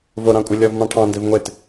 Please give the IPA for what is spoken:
voɾɑ̃kʷʼɪ lʲɔvmɑ̃ʈʰɑ̃ ndɪvŋʷet

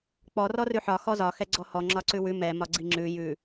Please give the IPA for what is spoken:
k͡pɔ rɔrʉħɒ xɔzɒ xɛɡ͡ǀɔhɔ ŋ͡ǁɒǀʉwʉ mɛ mɒɡ͡ǀiŋ͡ǁʉ jʉ

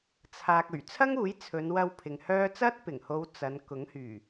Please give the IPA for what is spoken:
t͡sʰaː˨k̚ ɵ˨˩ɥt͡sʰɐ˥ŋuː˨˥j t͡sʰɵ˨˧nwɐ˧w pʰɪ˨ŋhœː˥ t͡sɐ˥t̚pɪ˨˩ŋho˨˧w t͡sɐ˨˧n kʊ˨˥ŋhyː˨˩

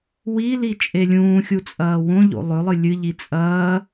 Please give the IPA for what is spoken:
wi lit͡ʃʼelʲũːxʲu t͡sʼɐːwõʎo̰ lˠɵlˠɨ lʲɨʎi t͡sʼɐː

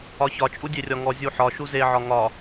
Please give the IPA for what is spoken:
ɒçɒ t͡ʃʼudʲerʲɒŋɔ zʲuħɒ ʃuze ʕɒŋɒ

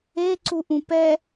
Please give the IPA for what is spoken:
eǀuʔũ pɛ

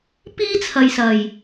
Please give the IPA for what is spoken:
piː˥t͡sʰɐ˨jsɐ˨˩j

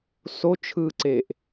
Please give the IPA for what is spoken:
so t͡ʃʰɯǀeʔ

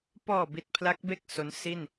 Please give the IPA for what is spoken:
pɔː˨˩bi˨˩t̚ pʰla˦˥k̚be˥˩k̚ so˦˥n si˥˩n

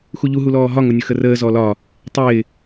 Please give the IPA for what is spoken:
xuʎu ɦulɔːɦɒ ŋʊnʲʊxərəː zɔlɒ | tˤɪː

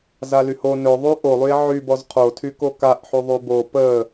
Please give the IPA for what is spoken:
zalyho nɵðˤy ʔolˠye̯ ʕybɔz qʰotʰyko kaʔħy ðˤybo pə

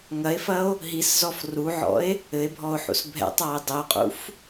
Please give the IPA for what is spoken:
ŋɐe̯fɐo̯ | ɦiszɔf ruʕɔ̰e̯ | ɘe̯bʱɔo̯ħṵs bʱɛ̰tˤae̯ dˤɘo̯qʼṵf

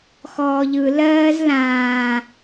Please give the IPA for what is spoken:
xɔːʎɯ lɜːzlãː

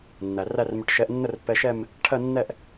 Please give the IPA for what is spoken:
nːæ˩ ræ˥˧rmʏ˧ʈ ʃɛ˧ʔnːə˥˧rpːɛ˧ʃɛ˥˧m | ʈʰɜ˥˧nːɛ˥˧ʔ

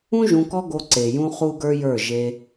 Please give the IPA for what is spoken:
ũ˦ ʒũ˧kɔ˦ ɡo˧ǀe˨jũ˧ χu˦ɡə˞˦jə˞˦˨ ʒe˧

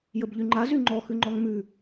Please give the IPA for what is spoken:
jəbʎyŋ͡ǃa zyŋ͡ǃɔ xʉŋ͡ǃɔŋmʉ

